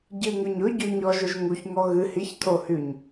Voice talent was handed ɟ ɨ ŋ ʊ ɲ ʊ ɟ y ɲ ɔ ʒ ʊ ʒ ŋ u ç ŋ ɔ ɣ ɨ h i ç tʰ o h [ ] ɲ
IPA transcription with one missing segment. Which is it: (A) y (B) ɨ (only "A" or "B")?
A